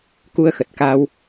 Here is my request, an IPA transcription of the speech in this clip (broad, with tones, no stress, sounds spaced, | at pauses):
k u˧ ə̯ x ə˨˩ t̚ k a˧ w